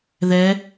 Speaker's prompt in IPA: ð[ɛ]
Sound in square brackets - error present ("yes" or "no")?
no